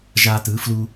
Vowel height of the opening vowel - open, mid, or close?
open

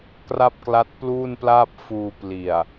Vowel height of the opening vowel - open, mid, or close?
open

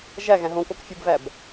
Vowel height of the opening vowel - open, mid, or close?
open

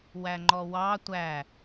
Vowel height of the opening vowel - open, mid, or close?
open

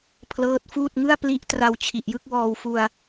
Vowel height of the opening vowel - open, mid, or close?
mid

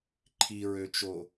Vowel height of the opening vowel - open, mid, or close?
close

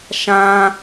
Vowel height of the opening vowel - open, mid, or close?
open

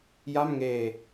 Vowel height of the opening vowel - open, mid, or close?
open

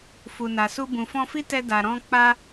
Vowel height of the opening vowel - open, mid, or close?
close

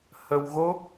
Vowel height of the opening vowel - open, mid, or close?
mid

